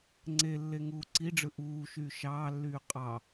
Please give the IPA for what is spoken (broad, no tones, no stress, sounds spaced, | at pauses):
ŋ͡ǀ e lː e ŋ uː ǀ i ɖ͡ʐ ɯ ʔ uː ʃ yː ʃ ɑː lː yː qʼ ɑ